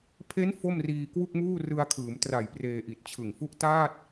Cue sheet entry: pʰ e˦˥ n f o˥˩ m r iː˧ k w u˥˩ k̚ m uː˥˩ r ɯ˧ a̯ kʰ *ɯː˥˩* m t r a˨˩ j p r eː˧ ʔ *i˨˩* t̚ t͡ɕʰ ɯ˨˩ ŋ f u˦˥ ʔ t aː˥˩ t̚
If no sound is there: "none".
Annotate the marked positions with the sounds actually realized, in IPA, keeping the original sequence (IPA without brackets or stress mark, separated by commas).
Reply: ɯː˩˦, i˨˩